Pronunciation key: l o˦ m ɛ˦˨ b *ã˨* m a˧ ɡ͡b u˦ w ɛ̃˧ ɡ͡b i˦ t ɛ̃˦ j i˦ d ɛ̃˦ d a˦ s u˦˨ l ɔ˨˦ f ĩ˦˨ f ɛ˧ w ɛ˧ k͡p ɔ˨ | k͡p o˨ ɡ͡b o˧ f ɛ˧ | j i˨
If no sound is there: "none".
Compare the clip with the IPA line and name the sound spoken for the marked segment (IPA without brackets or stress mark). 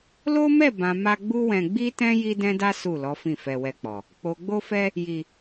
ã˨